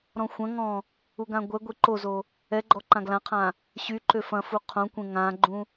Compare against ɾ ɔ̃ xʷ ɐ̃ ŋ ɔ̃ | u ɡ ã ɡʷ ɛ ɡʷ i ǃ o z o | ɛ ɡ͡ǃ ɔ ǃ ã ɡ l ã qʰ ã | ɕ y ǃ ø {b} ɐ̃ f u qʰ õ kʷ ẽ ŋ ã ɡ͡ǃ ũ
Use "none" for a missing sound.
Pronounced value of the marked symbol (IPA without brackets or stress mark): f